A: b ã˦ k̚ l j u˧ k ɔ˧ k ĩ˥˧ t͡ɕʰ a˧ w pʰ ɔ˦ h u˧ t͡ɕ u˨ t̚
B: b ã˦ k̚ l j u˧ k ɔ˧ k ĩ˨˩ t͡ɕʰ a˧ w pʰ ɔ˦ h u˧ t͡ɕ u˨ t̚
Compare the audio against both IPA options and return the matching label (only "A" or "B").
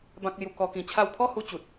B